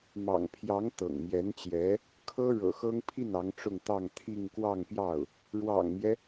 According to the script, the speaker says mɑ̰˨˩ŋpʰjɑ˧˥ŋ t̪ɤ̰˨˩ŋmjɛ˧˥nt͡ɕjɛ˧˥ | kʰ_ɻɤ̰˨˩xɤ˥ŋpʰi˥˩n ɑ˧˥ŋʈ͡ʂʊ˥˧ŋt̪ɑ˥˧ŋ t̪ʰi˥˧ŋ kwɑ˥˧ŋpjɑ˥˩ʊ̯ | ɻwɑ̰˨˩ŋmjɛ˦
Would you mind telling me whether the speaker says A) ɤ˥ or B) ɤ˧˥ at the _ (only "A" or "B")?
A